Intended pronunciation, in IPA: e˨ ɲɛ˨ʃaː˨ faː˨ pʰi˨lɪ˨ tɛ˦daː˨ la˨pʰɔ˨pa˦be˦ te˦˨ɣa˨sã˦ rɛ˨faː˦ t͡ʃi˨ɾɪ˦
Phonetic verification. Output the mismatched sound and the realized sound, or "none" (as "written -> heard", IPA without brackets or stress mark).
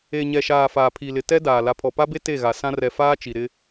none